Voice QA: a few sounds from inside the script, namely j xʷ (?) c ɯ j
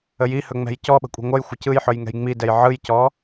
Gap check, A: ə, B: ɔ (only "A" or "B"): A